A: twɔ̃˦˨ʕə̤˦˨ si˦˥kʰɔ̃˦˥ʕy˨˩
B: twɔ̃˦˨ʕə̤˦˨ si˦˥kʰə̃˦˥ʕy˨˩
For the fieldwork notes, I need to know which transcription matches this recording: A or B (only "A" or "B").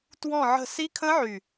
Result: B